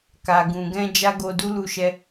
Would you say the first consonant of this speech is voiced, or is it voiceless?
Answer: voiceless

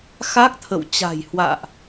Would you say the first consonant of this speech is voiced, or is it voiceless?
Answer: voiceless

